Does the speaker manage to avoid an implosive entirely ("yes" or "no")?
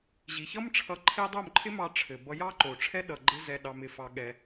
no